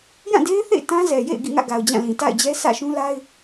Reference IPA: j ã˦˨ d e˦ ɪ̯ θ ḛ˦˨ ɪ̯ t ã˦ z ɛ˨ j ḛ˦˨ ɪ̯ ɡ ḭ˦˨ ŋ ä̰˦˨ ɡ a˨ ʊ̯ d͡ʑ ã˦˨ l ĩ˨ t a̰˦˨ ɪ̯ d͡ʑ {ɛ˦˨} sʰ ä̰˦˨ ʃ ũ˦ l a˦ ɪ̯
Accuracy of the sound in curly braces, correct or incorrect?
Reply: incorrect: ɛ˦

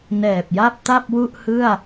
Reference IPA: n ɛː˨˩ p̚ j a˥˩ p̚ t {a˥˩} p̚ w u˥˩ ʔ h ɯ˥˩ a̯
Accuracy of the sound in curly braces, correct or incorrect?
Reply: correct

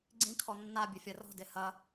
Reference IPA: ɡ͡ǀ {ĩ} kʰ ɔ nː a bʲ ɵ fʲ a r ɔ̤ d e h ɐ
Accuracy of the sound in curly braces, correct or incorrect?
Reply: correct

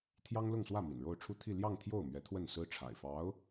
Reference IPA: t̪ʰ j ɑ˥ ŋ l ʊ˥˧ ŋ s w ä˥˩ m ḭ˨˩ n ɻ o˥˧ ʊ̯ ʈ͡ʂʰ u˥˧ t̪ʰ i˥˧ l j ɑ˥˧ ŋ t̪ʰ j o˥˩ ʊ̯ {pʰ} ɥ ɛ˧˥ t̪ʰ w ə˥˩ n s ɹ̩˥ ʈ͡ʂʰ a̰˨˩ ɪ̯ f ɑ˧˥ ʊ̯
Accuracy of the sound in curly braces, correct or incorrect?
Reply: incorrect: m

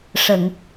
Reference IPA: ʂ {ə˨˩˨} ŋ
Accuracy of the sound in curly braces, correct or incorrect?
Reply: correct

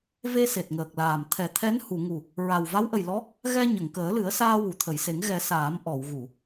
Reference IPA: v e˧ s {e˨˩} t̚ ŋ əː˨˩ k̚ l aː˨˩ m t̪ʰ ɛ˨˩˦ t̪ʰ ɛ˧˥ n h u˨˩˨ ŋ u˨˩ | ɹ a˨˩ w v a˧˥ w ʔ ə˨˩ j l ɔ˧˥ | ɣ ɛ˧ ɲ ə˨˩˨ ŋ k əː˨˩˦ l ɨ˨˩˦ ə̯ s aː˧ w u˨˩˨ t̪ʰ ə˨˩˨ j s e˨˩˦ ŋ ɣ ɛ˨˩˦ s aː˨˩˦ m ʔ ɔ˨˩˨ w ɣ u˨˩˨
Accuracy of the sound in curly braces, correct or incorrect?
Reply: correct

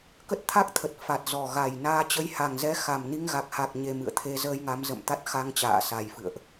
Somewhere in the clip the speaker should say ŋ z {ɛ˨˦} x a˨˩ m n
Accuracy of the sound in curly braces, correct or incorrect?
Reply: incorrect: ɛ˧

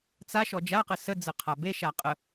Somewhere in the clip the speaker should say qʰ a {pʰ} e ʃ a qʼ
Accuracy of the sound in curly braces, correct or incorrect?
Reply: incorrect: b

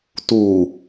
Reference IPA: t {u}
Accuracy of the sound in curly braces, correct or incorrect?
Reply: correct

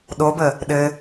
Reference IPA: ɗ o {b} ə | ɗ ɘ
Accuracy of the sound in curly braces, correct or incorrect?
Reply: correct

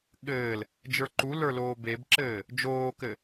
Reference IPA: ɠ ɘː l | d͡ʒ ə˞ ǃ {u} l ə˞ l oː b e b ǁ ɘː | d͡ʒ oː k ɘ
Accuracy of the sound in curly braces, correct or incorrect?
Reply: correct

